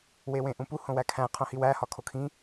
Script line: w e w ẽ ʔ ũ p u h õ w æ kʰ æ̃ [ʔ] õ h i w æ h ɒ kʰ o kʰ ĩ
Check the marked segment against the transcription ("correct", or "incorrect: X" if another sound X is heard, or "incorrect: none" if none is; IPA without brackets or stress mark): incorrect: qʰ